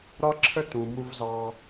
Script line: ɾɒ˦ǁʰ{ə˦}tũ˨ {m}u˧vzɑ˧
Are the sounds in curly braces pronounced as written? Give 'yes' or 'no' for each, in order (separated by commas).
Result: yes, yes